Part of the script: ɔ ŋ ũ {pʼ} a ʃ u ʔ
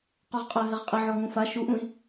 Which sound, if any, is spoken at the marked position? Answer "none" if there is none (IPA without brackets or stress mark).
f